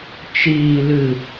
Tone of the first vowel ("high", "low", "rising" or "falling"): low